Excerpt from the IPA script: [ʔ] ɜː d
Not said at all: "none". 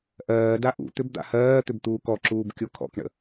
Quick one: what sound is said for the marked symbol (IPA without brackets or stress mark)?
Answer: ʔ